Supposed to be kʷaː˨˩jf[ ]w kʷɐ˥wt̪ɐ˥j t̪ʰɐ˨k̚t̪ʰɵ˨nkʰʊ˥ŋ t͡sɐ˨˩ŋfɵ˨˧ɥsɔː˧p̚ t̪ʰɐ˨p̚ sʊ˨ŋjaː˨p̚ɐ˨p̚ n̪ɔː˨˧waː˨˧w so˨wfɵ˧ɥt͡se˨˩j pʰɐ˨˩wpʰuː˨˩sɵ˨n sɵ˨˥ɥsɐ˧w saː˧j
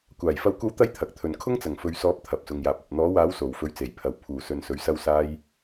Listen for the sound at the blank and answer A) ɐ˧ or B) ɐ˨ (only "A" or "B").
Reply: A